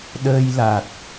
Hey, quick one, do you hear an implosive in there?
yes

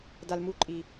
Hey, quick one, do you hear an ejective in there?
yes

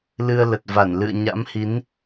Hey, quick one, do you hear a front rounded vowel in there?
no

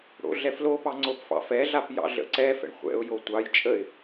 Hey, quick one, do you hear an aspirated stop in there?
no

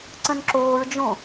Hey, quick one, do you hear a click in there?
yes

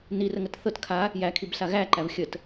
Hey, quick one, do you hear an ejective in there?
no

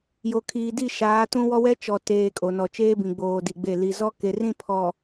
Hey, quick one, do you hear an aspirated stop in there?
yes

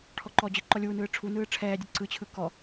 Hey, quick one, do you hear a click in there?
yes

